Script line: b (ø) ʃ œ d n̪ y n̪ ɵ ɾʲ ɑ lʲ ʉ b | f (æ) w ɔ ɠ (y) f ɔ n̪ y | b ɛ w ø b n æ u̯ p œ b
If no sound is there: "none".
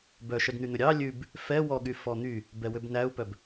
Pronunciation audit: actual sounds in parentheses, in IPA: œ, ɛ, y

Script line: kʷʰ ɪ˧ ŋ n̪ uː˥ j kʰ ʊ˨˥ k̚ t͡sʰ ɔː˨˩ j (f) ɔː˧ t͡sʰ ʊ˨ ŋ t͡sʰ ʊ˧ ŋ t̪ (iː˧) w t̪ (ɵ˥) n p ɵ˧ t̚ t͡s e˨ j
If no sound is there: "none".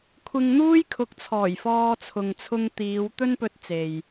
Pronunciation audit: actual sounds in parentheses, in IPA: f, iː˨˧, ɵ˥

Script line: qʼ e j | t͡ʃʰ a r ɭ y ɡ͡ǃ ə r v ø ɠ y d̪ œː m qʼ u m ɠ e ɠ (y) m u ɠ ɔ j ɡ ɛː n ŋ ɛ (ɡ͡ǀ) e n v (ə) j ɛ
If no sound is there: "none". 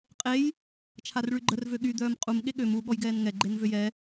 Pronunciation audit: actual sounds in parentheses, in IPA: ø, ɡ͡ǃ, ø

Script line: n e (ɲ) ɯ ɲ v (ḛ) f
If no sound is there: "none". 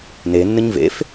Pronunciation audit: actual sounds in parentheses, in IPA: nː, ḛ

